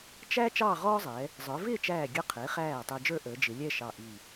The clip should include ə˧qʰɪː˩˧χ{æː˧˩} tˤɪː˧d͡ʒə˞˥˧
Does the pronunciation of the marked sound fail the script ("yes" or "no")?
no